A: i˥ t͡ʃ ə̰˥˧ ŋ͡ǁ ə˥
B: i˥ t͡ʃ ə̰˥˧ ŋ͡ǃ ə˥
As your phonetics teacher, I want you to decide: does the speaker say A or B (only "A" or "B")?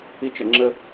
A